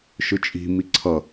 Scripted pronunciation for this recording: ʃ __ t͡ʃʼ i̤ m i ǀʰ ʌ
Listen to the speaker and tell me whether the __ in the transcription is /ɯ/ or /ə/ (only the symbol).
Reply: ɯ